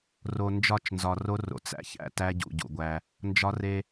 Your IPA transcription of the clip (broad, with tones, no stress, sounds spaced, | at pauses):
r o˨ n d͡ʒ ɒ˦˨ t͡ʃ n z ɒ˨ r o˦ r o̰˨ t͡s æ̰˦ ç æ̰˦ t æ˦ ɟ ṵ˨ ɟ ṵ˨ ɡʷ æ˦ | n d͡ʒ ɒ˦ r e˦